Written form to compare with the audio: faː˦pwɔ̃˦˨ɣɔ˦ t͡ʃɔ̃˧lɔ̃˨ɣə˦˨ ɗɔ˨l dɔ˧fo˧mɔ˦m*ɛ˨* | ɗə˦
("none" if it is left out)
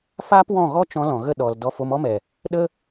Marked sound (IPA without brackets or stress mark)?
ɛ˨